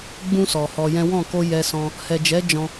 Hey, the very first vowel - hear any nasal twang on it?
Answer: yes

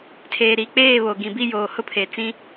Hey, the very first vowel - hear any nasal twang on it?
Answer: no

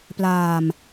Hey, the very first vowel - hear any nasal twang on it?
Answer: no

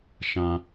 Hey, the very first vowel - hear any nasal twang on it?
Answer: yes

